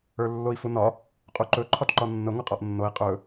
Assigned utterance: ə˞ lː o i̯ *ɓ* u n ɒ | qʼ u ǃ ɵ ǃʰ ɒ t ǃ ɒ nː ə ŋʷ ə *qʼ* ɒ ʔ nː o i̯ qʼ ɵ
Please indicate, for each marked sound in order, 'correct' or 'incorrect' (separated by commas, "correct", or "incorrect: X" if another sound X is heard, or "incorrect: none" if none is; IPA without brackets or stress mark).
incorrect: f, correct